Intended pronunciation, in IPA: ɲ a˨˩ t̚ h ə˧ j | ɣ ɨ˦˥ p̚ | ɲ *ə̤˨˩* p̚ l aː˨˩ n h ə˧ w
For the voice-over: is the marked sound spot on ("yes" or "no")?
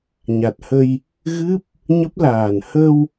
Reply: no